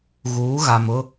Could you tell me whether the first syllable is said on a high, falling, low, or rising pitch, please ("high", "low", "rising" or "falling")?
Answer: rising